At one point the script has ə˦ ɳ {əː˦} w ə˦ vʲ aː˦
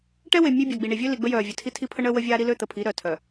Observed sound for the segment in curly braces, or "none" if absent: əː˦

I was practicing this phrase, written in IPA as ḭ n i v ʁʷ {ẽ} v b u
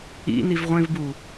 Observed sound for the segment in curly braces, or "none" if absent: ẽ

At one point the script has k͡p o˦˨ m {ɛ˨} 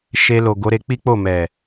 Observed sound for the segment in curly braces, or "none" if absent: ɛ˨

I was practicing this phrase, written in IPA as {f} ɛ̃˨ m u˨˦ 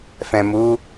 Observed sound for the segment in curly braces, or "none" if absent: f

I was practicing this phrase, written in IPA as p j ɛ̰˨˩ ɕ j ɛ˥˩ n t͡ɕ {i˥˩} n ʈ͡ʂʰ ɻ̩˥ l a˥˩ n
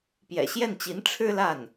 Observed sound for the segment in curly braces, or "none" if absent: i˧˥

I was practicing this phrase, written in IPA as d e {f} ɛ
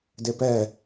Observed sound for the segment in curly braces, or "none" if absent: p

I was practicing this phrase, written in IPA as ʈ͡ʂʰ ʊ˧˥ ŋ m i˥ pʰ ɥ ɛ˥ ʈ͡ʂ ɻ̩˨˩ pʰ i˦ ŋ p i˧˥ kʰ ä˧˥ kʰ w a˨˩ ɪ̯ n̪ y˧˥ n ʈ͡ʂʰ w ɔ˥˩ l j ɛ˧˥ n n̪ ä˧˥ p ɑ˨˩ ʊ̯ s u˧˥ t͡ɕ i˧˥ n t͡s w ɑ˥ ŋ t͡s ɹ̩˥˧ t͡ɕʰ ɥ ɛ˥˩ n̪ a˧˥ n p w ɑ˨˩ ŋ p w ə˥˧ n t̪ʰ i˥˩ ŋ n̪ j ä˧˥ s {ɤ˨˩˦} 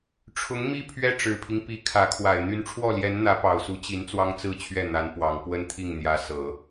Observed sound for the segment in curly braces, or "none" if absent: ɤ˨˩˦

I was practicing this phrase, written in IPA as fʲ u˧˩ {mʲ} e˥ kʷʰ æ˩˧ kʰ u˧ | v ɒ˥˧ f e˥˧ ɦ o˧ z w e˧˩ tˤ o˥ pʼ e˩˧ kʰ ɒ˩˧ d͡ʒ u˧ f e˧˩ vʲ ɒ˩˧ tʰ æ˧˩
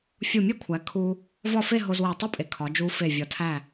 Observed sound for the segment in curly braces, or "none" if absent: mʲ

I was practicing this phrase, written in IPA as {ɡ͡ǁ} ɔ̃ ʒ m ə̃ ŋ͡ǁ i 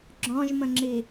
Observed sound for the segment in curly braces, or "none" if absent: ɡ͡ǁ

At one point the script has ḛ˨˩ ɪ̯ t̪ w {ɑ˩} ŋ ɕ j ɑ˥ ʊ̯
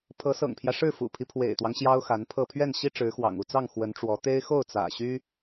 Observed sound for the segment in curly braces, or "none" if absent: ɑ˦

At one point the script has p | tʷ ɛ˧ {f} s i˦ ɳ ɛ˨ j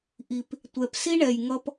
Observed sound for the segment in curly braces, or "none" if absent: p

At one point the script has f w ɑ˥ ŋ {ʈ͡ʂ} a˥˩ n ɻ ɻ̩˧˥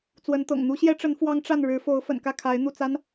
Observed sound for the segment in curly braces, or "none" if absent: ʈ͡ʂ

